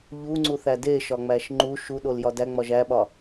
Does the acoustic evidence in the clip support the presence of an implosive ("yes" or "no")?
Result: yes